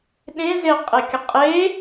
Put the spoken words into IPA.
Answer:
ɗ ẽ z e qʼ e kʲ ə qʼ e

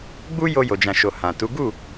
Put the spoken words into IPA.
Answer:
ɡ͡b u˦ j o˧ j o˨ d͡ʒ ã˨ ʃ o˨ h ã˨ t u˨˦ ɡ u˦˨

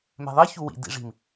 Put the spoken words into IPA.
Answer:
m ɛ̤ ðˤ i ç u w ḭ d ḭ ʐ i̤ m

